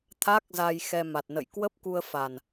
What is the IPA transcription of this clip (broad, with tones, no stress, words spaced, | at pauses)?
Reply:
t̪ʰa˦˥k̚za˧j xɛ˧ma˨˩t̚nə̰˧˨j kwə˦˥p̚ku˧ə̯fa˨˩n